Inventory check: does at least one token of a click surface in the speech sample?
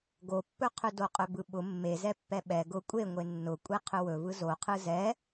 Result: no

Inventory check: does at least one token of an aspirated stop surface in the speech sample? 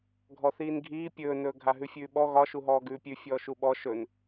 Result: no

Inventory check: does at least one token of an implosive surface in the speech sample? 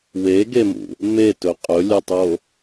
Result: no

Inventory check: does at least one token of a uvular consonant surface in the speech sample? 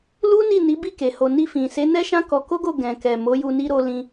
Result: no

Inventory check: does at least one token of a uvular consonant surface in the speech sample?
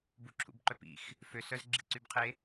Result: yes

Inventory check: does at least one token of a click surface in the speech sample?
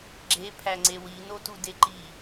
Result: yes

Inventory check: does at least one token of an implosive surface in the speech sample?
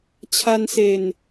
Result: no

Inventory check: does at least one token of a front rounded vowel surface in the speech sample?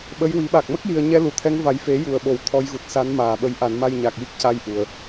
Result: no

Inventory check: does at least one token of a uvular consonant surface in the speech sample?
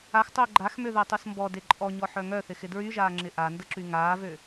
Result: no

